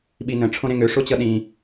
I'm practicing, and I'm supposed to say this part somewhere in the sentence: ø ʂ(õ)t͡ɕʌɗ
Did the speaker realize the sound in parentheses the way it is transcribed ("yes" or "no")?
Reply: no